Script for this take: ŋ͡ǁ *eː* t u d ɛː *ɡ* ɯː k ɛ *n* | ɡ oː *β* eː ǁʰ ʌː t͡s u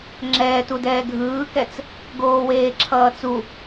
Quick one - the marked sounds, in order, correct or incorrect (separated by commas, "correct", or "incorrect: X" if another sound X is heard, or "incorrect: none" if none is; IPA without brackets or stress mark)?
incorrect: ɛː, incorrect: ɡʱ, incorrect: t͡s, incorrect: w